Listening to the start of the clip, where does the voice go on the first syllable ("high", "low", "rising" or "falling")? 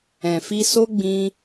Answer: low